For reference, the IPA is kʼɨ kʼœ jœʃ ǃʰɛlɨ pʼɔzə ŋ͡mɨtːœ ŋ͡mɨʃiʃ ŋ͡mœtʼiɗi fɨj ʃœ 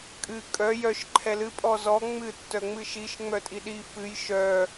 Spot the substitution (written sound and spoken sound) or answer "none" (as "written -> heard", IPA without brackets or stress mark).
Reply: ə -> ɔ